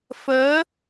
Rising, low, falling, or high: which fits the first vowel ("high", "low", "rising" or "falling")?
rising